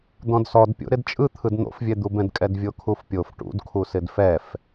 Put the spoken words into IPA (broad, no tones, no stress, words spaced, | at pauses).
d̪ɔ̃dsɔdpʲo̰ ɾɪdt͡ʃʼɯt̪ʰɯd n̪o̰fvʲɛd̪ubɛ̃d kʼɛdvʲokʰufpʲof ʈṵdkʰusɪd fɛf